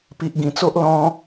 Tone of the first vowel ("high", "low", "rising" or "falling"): low